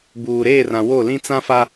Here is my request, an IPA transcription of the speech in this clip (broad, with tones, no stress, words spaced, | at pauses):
buː˨ɾeː˦˨rã˨ wo˦˨lĩ˦ t͡sã˦fa˦